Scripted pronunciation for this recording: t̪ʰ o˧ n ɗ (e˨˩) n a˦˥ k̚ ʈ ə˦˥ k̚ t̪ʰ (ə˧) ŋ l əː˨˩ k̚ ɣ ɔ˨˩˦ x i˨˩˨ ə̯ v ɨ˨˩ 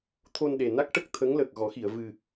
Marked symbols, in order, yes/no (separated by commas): yes, no